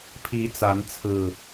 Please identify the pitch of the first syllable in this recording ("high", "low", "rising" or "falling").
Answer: rising